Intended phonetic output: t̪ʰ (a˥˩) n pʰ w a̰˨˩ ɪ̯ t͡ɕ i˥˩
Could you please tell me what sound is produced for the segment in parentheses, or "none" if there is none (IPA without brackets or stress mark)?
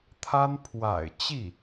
a˥